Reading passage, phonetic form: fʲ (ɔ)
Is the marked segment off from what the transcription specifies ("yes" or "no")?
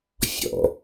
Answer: yes